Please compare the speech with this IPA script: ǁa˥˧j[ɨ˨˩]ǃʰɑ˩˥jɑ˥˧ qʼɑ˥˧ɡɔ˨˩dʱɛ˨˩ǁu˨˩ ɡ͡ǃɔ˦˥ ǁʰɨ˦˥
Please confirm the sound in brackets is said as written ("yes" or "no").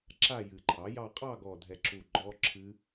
yes